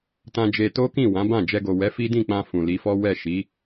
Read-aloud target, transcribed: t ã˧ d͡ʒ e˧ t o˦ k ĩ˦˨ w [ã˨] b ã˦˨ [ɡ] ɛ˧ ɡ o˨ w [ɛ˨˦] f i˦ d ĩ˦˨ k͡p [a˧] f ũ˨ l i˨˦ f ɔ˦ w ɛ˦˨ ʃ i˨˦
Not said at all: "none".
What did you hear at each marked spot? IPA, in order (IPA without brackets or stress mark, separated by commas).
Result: ã˨˦, d͡ʒ, ɛ˨˦, ã˧